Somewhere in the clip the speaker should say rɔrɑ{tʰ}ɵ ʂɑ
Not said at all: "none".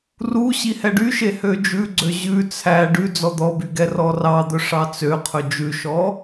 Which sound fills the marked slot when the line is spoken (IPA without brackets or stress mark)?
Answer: d̪